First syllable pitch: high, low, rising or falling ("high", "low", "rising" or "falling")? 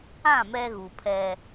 falling